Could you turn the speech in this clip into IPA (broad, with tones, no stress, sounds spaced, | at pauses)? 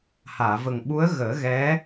h aː˨˩˨ v ə˨˩ ŋ ɓ u˧˥ ə̯ ɣ əː˨˩˦ ɣ ɛ˧˥